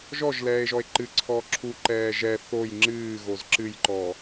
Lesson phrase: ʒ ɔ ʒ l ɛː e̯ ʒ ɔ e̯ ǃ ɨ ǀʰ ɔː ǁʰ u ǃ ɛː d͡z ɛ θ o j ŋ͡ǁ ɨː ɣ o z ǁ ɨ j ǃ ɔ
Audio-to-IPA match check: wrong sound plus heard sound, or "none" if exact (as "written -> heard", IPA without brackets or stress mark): d͡z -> ʒ